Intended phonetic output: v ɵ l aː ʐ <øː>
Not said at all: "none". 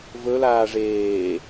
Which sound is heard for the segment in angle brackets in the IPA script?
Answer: eː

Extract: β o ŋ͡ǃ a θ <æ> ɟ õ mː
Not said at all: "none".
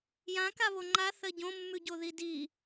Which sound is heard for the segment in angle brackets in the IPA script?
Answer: ɜ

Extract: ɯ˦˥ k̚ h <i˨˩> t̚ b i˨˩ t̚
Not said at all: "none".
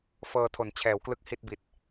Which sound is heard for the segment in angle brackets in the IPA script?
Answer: i˥˩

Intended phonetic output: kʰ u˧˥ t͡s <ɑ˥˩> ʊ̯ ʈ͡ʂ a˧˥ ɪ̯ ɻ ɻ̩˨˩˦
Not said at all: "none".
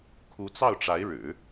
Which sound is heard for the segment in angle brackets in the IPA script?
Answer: ɑ˥˩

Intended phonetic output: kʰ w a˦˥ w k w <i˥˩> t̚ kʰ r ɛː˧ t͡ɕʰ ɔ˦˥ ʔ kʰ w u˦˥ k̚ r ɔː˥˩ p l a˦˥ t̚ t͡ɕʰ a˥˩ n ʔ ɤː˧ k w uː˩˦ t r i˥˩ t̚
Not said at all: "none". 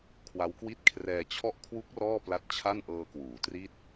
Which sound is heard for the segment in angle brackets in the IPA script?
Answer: i˥˩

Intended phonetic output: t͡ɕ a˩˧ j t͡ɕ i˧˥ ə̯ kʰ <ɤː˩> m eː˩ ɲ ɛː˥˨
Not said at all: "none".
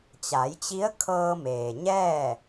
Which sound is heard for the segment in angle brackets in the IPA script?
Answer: ɤː˧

